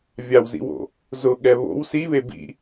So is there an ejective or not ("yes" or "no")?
no